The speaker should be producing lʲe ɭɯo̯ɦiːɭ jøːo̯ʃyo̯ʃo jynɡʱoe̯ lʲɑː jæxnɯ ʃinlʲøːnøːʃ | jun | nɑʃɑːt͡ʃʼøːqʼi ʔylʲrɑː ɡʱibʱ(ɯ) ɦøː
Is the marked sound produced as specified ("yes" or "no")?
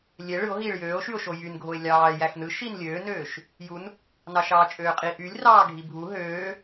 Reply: no